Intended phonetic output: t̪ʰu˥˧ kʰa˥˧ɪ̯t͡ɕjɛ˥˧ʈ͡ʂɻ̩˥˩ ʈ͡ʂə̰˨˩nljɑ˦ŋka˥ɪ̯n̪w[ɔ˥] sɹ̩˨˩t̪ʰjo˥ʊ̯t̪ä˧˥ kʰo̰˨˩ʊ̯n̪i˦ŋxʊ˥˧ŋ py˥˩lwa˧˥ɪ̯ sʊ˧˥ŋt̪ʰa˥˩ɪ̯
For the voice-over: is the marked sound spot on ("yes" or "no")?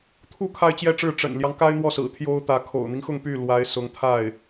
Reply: no